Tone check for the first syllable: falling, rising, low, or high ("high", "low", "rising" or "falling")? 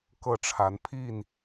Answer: falling